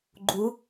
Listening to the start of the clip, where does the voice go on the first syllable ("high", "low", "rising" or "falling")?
rising